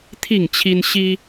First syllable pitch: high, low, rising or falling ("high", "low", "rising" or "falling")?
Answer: falling